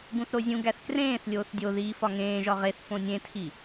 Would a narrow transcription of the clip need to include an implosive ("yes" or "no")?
no